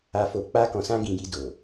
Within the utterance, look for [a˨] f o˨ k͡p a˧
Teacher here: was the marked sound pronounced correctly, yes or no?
yes